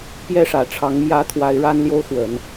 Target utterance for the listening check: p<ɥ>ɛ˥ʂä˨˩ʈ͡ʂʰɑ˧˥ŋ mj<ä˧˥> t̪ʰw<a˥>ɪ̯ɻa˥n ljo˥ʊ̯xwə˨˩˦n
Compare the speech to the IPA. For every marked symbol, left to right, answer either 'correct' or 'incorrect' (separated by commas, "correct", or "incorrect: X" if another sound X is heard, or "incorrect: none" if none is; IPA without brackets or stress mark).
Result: incorrect: j, correct, incorrect: a˧˥